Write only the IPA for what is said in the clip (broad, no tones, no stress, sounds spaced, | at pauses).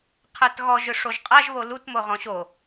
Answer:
qʰ ɛ t ɣ ɔ ʒ ɯ ʂ o ʒ qʼ a ʒ β o l u t m o ʁ ɔ̃ ɕ o